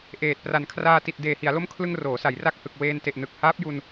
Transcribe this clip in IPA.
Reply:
ʔ eː˨˩ t̚ p r a˨˩ n kʰ r aː˧ t i˨˩ t̚ d eː˨˩ h i˩˦ a̯ l o˦˥ m kʰ l ɯ˧ ŋ r oː˩˦ s a˩˦ j r a˥˩ k̚ h ɯ˨˩ k̚ w eː˧ n t e˨˩ ʔ n ɯ˨˩ k̚ h aː˦˥ p̚ j u˧ n

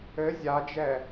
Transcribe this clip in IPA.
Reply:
ɘ zʲ a d͡ʒ ɛ

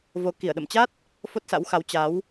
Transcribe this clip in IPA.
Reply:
v o˧ k i˧˩ ə̯ ɗ ə̰˧˨ m t͡ɕ a˦˥ t̚ | f o˦˥ t̚ s a̰˧˥ w x a˨˦ w t͡ɕ a˨˦ w

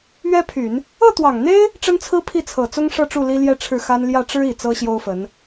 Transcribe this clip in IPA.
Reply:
ɥ ɛ˥ pʰ y˨˩˦ n | ɤ˥˩ t̪ w ɑ˨˩ ŋ n̪ e˥ ɪ̯ | ʈ͡ʂ ə˥ n t͡sʰ ɹ̩˥ pʰ i˥˩ t͡sʰ ɤ˨˩ t͡s ʊ˥ ŋ ʂ ɤ˥˧ ʈ͡ʂ u˥˩ l i˥ l j ɛ˥ ʈ͡ʂʰ ɻ̩˥˩ x a˥ n l j ä˥˩ ʈ͡ʂ ɻ̩˥ i˨˩ t͡s ɤ˥ ɕ j o˥ ʊ̯ f ə˧˥ n

